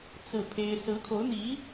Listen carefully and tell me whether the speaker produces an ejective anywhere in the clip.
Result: no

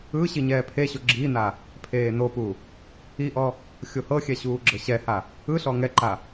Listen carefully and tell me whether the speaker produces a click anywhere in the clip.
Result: yes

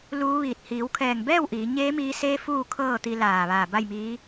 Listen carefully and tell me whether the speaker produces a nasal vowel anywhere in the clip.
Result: no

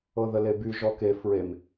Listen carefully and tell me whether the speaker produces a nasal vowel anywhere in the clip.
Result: no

